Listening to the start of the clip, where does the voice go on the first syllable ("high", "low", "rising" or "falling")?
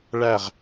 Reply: falling